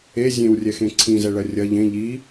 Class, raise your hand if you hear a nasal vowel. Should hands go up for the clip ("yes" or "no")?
yes